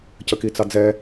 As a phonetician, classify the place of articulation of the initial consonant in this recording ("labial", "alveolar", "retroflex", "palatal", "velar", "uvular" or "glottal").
palatal